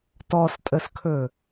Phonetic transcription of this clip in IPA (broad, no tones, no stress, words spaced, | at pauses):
tɔstʼəskʰɵ